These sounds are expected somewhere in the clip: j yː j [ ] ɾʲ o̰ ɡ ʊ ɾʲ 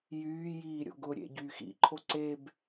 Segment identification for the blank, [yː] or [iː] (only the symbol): iː